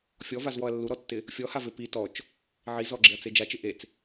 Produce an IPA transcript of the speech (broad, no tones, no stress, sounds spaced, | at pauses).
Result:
fʲ ɔ v a z w ɔ ɐ̯ lː u ɾ ɔ tː ɪ | fʲ ɔ h a v e p i t ɔ t͡ʃ | ʕ i z ɔ ɡ͡ǁ ɪ ɐ̯ t͡s e d͡ʒ a t͡ʃ ɪ ʔ e t͡s